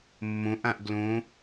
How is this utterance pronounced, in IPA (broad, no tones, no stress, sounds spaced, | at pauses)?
mː õ ʔ ã ʔ ɡ l õ